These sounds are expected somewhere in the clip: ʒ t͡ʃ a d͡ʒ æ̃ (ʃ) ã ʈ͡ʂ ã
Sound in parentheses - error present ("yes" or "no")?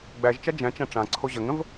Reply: yes